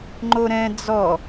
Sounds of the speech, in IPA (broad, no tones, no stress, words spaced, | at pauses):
ŋ͡ǃoɾɛ̃ d͡zɔ